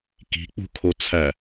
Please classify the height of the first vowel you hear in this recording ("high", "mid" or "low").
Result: high